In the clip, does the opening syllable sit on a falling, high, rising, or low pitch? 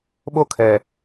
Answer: falling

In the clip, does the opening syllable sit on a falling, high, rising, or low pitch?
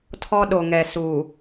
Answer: high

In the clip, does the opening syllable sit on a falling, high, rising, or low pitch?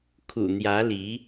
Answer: low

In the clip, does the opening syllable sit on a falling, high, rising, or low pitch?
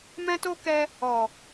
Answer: high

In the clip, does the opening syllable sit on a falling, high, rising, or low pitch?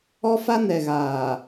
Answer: high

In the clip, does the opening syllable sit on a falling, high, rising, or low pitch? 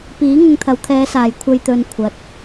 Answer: rising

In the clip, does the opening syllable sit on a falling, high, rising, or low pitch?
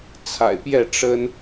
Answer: low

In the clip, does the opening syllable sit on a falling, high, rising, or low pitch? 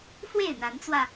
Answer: falling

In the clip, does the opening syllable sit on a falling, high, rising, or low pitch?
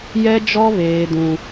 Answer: high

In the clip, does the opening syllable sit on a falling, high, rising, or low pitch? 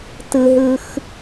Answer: low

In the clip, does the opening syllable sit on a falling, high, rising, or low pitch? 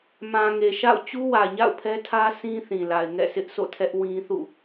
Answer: low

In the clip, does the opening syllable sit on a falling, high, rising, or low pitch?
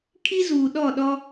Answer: high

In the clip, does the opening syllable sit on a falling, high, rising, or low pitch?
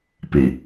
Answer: low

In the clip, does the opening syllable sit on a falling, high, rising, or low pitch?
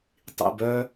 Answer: falling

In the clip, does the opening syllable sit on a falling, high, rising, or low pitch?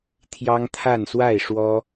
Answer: high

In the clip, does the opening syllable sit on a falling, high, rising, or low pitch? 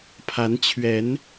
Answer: rising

